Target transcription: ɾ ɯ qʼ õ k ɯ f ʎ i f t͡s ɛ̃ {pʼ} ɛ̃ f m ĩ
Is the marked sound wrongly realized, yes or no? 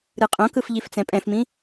no